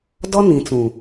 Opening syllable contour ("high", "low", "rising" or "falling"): high